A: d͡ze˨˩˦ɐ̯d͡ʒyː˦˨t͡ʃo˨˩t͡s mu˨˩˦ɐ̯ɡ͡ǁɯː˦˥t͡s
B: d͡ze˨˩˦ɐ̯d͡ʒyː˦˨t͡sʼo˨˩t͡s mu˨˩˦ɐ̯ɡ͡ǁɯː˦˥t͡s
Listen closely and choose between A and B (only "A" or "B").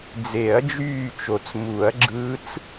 A